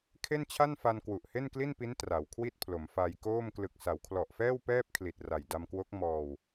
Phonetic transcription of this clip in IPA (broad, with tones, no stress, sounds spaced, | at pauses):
kʰ e˥˩ n t͡ɕʰ a˥˩ n f a˧ n k w u˨˩ ʔ h e˥˩ n k l i˥˩ n p i˦˥ n t r a˩˦ w kʰ w i˥˩ t̚ pʰ l o˩˦ m f a˧ j k oː˥˩ m k l ɯ˨˩ k̚ s a˩˦ w kʰ l ɔ˨˩ ʔ f ɛː˥˩ w p ɛː˥˩ p̚ kʰ l i˨˩ t̚ r a˨˩ j d a˧ m k w o˦˥ k̚ m ɔː˧ w